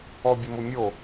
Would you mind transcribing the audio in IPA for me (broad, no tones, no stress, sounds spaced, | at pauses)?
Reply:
ɔ bʲ ə m ʊ mʲ o